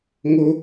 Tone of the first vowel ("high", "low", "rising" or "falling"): high